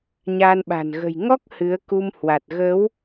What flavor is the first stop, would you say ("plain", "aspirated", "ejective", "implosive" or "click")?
implosive